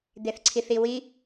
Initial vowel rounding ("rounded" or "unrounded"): unrounded